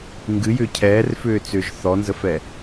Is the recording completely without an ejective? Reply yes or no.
yes